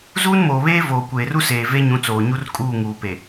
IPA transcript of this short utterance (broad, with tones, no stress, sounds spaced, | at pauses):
z uː˦ n m oː˨ β eː˦ v oː˨ kʷ eː˨ r u˦ s eː˨ v e˦ ɲ ũ˨˦ t͡s oː˨ ɲ u˦ r kʼ uː˦˨ ŋ uː˨ p e˨